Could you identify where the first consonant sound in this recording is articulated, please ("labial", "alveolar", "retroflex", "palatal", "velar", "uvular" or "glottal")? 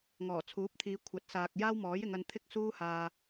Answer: velar